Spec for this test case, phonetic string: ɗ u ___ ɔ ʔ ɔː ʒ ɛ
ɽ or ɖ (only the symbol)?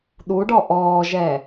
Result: ɖ